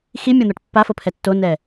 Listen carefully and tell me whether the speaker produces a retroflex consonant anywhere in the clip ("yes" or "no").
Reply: yes